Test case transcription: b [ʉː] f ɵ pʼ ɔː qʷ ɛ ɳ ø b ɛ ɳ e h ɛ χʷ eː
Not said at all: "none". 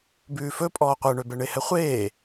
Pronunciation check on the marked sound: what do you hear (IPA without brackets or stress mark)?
ʉː